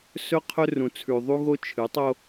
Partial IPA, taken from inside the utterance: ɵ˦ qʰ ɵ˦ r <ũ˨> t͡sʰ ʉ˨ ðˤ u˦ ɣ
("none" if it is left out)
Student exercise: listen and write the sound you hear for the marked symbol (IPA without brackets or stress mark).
ũ˨